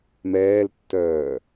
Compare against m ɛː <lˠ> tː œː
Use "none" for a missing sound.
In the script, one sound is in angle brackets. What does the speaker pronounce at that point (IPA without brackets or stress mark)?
l